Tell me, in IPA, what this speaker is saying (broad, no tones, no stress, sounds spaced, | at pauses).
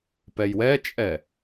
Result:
p ɛ j w ɛ t͡ʃʼ ɛ